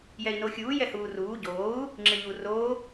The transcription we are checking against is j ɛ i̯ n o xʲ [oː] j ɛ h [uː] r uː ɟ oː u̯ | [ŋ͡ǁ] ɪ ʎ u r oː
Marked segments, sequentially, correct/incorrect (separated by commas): incorrect, correct, correct